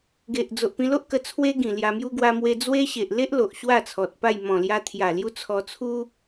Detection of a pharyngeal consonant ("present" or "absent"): absent